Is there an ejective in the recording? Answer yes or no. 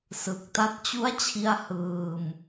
no